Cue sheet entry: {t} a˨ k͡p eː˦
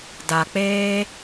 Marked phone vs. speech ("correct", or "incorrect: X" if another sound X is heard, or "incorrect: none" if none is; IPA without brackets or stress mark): incorrect: d